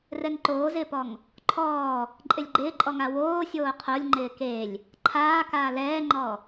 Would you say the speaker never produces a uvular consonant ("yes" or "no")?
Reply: no